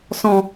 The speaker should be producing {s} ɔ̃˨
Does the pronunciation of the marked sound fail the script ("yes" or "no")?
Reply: no